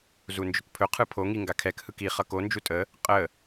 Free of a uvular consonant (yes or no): no